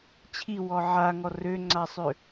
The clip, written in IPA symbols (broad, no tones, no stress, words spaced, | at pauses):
t͡ɕʰiwɔ ʕaŋɔ røŋ͡ǀasˤø